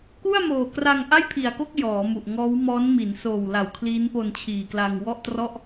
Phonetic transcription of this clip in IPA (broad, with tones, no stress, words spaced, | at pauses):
ku˥˩a̯moː˨˩kra˧ŋ ʔa˥˩jpʰi˨˩a̯ko˥˩k̚ jɔː˩˦mu˨˩ʔŋɔː˦˥wmɔː˦˥n mi˩˦nsoː˨˩wla˨˩w kʰliː˦˥npo˧nt͡ɕʰiː˨˩kla˧ŋ wɔ˥˩ʔtrɔ˥˩ʔ